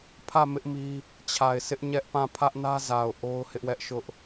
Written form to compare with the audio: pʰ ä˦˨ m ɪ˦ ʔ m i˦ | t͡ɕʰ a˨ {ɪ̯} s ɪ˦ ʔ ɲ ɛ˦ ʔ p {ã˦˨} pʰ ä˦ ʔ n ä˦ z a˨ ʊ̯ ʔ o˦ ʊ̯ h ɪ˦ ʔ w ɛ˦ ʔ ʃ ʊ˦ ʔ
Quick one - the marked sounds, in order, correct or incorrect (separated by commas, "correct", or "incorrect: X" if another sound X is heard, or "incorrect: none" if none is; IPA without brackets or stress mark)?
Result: correct, correct